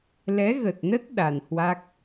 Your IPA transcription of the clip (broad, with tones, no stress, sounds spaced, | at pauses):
l ɛ˨˦ ɣ ə˨˩ t̚ n ə˦˥ t̚ ɗ a˨˩ n h w a˦˥ k̚